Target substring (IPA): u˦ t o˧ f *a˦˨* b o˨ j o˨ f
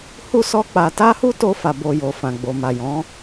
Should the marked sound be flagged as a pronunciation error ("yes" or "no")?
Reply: yes